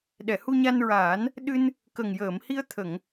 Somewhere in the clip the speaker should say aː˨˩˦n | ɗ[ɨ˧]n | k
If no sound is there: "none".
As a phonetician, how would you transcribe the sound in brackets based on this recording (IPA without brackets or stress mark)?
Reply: ɨ˧